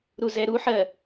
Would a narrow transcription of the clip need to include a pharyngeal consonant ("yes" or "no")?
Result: yes